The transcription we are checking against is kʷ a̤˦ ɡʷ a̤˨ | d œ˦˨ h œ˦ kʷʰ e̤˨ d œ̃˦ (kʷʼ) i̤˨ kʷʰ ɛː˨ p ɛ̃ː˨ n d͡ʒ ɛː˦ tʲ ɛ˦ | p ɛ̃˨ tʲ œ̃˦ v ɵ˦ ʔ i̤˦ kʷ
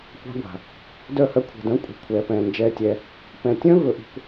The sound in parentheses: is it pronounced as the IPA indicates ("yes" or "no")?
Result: yes